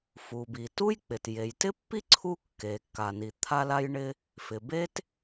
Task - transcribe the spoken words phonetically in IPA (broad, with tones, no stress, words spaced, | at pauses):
fu˩bi˩ tu˥jk͡pɪ˩t je˩jtɪ˥pːi˥ ǀʰu˥kːe˩kːa˩ni˩ t̪ʰa˥la˥jɳɪ˥ | fɪ˩be˥t